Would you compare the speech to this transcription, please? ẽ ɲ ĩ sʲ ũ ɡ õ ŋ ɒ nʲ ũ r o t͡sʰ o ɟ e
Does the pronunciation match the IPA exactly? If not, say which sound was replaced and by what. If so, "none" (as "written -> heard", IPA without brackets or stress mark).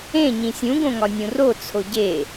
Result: none